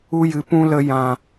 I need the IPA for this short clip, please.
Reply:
u˧ j ɨ˨ p ũ˧ l ə˧ j ã˨

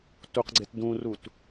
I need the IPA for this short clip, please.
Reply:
t u q ɡ͡ǀ e t d ũ r u t

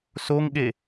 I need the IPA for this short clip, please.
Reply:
s o ŋ ɠ e

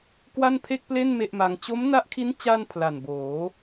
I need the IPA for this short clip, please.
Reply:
k w a˥˩ n pʰ e˥˩ k̚ p l e˥˩ n m e˥˩ ʔ m a˧ ŋ t͡ɕ o˦˥ m n a˦˥ ʔ kʰ i˦˥ n t͡ɕ a˥˩ n pʰ l a˨˩ n b oː˩˦

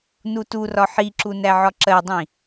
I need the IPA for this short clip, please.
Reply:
n u t u r ɒ ħ i ǁ u n æ ʕ ɒ ǁ ɜ dˤ ĩ

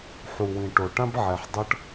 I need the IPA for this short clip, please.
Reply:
ħ u˨ w ĩ˨ ʈ o˨ ʈ ã˦ b ʕ ɛ˨ ħ dˤ ʌ˦ ʈ

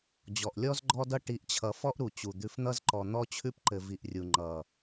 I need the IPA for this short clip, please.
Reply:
d͡ʑ ɔ˨ ʔ lʲ ɔ˦ z ɡ͡ǃ ɔ˦ d ʌ˦ ʈ i˨˦ ʔ t͡ɕʰ ʌ˨ f ɔ˦ ʔ ɾ u˨ t͡ɕ u˨ d̪ ʉ˨ f n̪ ʌ˦ z ǃ ɔ˨ n̪ ɔ˦ t͡ɕʰ ʉ˦ p ǃ ɘ˨ v i˨ ʔ rʲ u˨ ŋ͡ǃ ʌ˨

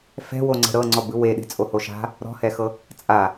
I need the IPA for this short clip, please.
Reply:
f ɛ̤ w o ŋ͡ǀ ɛ̤ ɾ ɤ ŋ͡ǀ ɔ b ɯ w e ɗ e̤ t͡sʼ o h o ʃ a̤ | ɾ ɔ̤ h ɛ x ɤ | t͡sʼ a

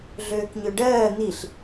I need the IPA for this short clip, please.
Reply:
ɮ øː k ɲ ø ɖ ɜː n̪ i ɬ

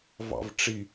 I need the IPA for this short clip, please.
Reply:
v ɑ̰ v ʈ͡ʂ i

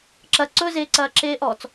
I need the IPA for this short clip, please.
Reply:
ǁ ɐ ǀ ɵ z eː ǀ ɐː ǁ eː ʔ ɔ t͡s

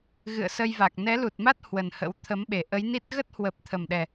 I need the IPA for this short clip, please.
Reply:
ɣ ɨ̰˧˨ ə̯ s ə˧ j v a˨˩ k̚ n ɛ˨˦ l u˨˩ t̚ m a˦˥ t̚ h w ə˨˩ n h ə̰˧˥ w t̪ʰ ə˨˦ m ɓ e˨˩ ʔ ə˨˦ j n i˦˥ t̚ ɣ ə˦˥ t̚ h w ə˨˩ p̚ t̪ʰ ə˨˩ m ɗ ɛ˨˩

